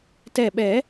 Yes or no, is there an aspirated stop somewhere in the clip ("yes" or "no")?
no